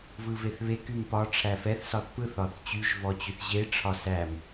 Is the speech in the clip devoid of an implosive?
yes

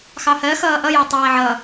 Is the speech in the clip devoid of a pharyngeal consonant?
no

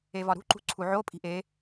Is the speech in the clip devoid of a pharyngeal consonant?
no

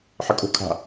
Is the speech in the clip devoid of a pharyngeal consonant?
no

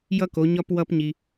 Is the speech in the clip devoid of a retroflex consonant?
yes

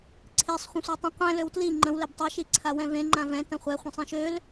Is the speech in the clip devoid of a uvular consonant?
no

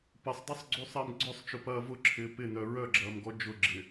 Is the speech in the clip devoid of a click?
no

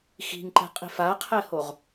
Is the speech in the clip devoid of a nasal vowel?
yes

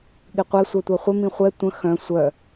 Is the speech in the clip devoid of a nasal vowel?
no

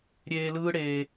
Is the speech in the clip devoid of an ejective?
yes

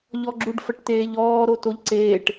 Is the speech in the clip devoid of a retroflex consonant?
no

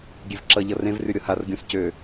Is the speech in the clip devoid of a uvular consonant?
yes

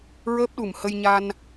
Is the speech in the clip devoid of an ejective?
yes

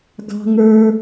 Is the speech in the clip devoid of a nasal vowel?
yes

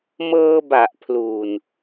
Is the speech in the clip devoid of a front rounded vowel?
yes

